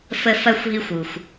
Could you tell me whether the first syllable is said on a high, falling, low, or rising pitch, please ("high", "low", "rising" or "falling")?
high